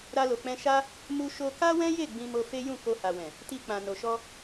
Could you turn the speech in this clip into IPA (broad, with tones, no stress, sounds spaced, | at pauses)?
ɾ a˧ l o˨ k͡p ɛ̃˧ ʃ a˦ | m u˦ ʃ o˦ k a˦ w ɛ̃˦ j e˦˨ ɡ͡b ĩ˧ m o˧ f e˦ j ũ˦˨ k o˧ h a˨ w ɛ̃˨ | t i˧ k͡p ã˨ n o˨ ʃ ɔ˧